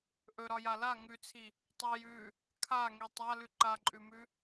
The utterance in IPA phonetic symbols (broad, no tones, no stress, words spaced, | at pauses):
ʔɵɾɒja la ŋʉt͡sʰi | tˤʉ jʉ | kʰaŋi tˤalʉ ǃaǃʼʉmʉ